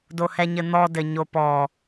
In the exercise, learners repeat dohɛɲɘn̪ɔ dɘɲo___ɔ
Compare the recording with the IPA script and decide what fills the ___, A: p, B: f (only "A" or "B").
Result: A